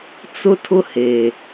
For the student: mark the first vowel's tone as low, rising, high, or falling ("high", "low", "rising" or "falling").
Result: high